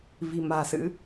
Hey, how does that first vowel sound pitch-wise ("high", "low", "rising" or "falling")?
low